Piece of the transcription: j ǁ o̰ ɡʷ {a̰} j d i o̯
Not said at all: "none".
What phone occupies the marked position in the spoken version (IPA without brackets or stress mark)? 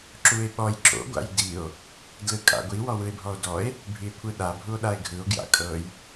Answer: a̰